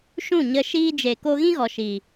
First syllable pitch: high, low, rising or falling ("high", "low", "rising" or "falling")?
falling